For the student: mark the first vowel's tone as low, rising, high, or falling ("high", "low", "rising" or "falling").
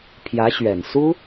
rising